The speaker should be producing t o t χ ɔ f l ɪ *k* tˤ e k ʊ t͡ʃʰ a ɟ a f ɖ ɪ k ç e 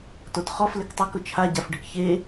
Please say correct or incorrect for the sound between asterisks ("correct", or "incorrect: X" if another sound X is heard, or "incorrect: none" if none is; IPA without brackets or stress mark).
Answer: correct